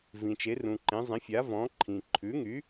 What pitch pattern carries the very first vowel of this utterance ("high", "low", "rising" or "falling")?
low